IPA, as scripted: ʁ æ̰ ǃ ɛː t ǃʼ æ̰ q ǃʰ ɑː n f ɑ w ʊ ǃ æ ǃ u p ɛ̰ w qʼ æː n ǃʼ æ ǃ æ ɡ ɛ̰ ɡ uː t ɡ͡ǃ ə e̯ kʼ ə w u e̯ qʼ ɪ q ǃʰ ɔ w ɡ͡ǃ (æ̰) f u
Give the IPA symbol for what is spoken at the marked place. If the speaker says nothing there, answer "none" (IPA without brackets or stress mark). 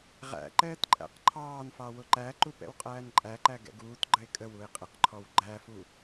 æ